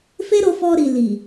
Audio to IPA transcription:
f e˦ ɾ o˧ f ɔ˧ ɾ i˨ l i˨

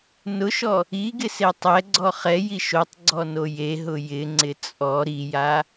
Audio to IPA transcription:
n ʊ ʃ ɔ | i ɡ ɪ s e tˤ ɛ ɡ͡ǀ ɔ χ ɛ j i ʃ o tˤ ɡ͡ǀ ɔ n o j e ɦ ʊ j ɪ ŋ͡ǀ ɪ t͡sʼ ɔ ɾ i j a

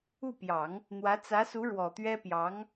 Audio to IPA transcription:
u˥˩ p j ɑ˨˩˦ ŋ | n̪ w ä˧˥ t͡s ä˧˥ s u˧˥ ɻ w ɔ˨˩ t̪ ɥ ɛ˥ p j ɑ˧˥ ŋ

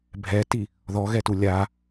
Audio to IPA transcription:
bʱ ɛ t i | ð ɔ ɣ ɛ t u lʲ a

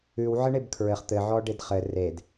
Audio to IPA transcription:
ʉ w ʕ ə ɳ e b kʰ ɹ ɘ χ t̪ ɘ ʕ ɔ ɖ e d χ ɘ r e d

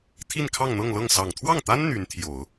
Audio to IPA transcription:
t̪ʰ i˥˧ n kʰ ɑ˥˧ ŋ n̪ ɤ˥˧ ŋ l ɤ˥˩ ŋ s ɑ˨˩ ŋ t̪ʰ w ɑ˥˩ ŋ t̪ a˥ n n̪ y˧˥ n t̪ʰ j o˨˩˦ ʊ̯

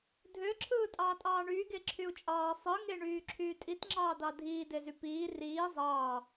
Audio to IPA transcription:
dʱ ø ǁʰ ɯː tʼ ɑː tʼ ɑː ɳ yː ɡ e ǁʰ y u̯ t͡ʃʼ ɑː sˤ ɯ ŋ e ɳ yː ǁʰ yː tʼ i t ŋ͡ǁ ɑː d ɑ dʱ iː d e z y p iː r iː zˤ ɑː

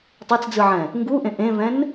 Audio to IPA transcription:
tˤ a t͡s d͡z ɯ ʕ ɛ̃ | ŋ ɡ u ʔ ẽ ʔ ẽ v ɛ̃ n

